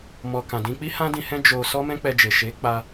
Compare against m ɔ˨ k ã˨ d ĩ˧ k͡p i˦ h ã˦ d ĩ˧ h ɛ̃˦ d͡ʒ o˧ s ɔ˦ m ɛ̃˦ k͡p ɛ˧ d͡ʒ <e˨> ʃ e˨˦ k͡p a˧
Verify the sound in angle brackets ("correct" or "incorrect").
correct